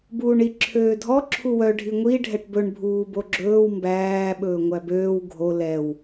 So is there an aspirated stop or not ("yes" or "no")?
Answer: yes